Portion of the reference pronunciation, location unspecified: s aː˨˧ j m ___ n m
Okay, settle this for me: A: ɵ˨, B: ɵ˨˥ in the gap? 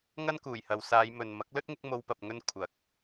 A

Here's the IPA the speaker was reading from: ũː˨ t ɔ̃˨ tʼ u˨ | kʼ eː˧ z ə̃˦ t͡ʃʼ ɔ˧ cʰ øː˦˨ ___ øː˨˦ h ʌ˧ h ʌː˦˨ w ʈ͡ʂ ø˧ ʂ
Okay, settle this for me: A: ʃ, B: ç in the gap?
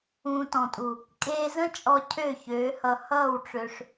B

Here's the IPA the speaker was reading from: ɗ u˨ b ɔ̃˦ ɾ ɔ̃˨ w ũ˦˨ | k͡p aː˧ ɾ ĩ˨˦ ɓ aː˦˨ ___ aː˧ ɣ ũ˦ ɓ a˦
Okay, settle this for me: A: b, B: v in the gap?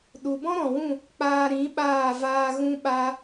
B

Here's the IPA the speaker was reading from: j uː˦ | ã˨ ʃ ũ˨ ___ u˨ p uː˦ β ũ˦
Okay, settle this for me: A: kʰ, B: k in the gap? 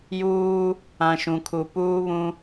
A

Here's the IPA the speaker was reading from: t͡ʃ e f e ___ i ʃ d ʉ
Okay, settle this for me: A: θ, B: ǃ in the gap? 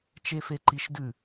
B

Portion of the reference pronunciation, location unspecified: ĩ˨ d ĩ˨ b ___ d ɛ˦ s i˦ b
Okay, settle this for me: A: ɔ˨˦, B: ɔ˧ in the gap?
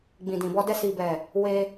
B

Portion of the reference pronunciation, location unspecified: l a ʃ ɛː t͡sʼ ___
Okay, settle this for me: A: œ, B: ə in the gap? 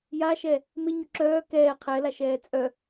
A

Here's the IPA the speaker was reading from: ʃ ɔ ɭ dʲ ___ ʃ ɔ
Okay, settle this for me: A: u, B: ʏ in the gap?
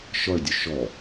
A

